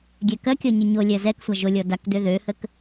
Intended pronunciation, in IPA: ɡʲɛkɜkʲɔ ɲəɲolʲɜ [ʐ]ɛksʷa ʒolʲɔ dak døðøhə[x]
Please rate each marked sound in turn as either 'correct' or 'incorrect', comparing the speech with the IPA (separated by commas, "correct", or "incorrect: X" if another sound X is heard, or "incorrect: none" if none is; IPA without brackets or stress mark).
incorrect: z, incorrect: k